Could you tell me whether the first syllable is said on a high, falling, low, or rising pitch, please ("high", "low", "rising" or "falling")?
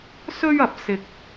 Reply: high